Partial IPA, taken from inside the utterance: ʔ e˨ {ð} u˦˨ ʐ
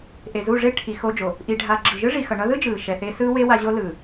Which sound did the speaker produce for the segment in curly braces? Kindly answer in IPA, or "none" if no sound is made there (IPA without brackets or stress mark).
z